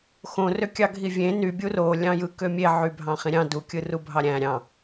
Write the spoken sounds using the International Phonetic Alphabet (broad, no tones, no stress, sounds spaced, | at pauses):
x õ r ø kʲ ɑ ɡʱ i vʲ ẽ n y bʲ u r o lʲ ɑ̃ j ɯ k ø mʲ e ʕ y bʱ ɑ̃ χ ĩ ɾʲ ɑ̃ d u kʲ ɯ r u bʱ ɑ ɾʲ æ̃ ɾʲ ɑ̃